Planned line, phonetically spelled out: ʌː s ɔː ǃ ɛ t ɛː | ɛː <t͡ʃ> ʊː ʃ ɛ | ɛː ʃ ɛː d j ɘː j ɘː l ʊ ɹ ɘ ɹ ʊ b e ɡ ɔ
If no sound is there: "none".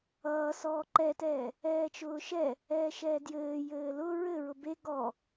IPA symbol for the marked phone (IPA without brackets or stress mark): t͡ʃ